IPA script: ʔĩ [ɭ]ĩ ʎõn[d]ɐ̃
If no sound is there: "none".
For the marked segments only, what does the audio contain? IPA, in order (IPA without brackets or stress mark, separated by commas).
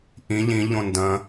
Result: ʎ, d